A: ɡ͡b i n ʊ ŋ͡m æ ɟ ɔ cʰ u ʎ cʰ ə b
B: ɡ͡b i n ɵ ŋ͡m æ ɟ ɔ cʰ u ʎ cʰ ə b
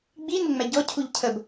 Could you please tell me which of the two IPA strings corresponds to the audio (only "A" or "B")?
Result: A